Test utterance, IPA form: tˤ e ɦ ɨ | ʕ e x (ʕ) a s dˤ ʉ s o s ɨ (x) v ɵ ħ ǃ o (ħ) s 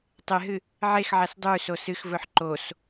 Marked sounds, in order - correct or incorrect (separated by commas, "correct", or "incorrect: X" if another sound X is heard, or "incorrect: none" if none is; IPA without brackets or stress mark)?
correct, correct, incorrect: none